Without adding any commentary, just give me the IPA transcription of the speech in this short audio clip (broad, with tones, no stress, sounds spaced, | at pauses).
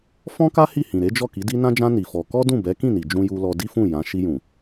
f ɔ̃˦ k a˦ h i˦˨ h ĩ˨ ɾ e˨˦ d͡ʒ ɔ˦˨ k i˨˦ d i˦ n ã˦ d͡ʒ ã˦ n i˧ f ɔ˧ k ɔ˦ d ũ˦˨ b ɛ˨˦ k ĩ˦˨ n i˨ d͡ʒ ũ˧ j u˧ l ɔ˧ d i˦ f ũ˦˨ j ã˨˦ ʃ i˧ j ũ˨